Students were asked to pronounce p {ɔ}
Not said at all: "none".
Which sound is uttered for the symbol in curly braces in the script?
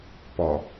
ɔ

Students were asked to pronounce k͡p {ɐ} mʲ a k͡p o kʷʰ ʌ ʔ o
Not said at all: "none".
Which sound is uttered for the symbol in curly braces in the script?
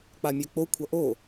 a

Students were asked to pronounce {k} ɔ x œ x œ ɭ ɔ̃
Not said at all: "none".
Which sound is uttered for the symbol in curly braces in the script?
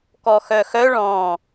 k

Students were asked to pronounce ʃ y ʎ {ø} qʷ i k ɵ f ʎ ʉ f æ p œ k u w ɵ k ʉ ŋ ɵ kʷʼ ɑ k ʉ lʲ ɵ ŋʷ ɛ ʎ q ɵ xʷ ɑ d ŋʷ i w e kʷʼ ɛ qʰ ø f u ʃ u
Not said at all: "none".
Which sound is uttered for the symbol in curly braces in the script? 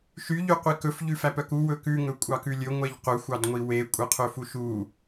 y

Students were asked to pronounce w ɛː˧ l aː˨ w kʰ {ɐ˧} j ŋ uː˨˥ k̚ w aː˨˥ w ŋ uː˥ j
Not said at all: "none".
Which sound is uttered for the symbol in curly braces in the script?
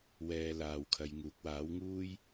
ɐ˨˧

